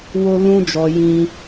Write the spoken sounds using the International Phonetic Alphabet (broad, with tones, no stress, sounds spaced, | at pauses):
w o˦ l ũ˦ d͡ʒ ɔ˧ j ĩ˦